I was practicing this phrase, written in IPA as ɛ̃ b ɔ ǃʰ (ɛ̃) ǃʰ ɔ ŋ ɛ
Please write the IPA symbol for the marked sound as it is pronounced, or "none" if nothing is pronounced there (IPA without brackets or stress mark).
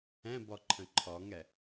ə̃